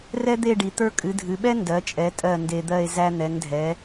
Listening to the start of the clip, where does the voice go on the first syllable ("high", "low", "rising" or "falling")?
high